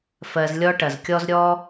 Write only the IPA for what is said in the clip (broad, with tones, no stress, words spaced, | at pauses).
fɜ˨zlʲɔ˦ʈɐ˩zkʲɔ˦z ɾʲɔ˥